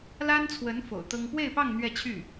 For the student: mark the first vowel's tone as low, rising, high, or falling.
high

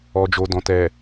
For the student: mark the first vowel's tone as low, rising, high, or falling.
low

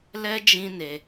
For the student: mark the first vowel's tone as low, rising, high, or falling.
high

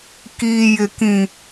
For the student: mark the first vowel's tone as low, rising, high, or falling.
low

